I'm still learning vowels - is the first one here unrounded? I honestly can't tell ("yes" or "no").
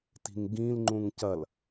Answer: yes